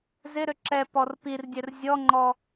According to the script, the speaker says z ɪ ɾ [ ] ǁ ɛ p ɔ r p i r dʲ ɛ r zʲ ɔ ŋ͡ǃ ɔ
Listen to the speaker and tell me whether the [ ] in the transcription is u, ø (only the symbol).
ø